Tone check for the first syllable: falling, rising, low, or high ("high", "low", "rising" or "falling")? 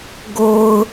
low